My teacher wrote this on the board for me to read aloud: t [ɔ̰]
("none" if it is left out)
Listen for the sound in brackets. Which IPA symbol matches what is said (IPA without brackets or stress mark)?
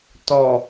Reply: ɔ